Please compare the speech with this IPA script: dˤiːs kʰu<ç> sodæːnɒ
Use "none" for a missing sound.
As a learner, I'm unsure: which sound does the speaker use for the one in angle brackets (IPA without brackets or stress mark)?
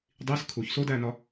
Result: ç